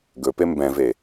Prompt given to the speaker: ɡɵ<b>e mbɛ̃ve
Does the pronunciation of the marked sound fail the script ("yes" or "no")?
yes